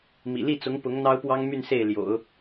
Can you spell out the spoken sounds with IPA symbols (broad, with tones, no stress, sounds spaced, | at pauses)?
m ḭ˨˩ l i˥˩ t͡s ʊ˧˥ ŋ p ʊ˧˥ ŋ n̪ ɑ˥ ʊ̯ p w ɑ˥ ŋ m y˥˧ n s e˥˩ ɪ̯ l j o̰˨˩˦ ʊ̯